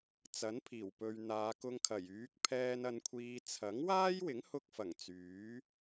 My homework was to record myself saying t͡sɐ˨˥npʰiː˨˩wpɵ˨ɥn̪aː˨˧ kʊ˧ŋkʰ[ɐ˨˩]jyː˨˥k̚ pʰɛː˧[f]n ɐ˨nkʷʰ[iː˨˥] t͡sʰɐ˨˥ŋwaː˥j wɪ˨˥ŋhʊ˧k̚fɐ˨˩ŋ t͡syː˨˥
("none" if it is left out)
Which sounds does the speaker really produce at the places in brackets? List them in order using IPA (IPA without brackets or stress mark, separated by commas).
ɐ˨˩, none, iː˨